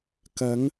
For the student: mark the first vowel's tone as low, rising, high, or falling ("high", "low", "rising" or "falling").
rising